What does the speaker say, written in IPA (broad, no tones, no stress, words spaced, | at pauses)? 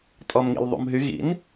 tʼɔmŋḭlðˤṵmɦy ɣḭn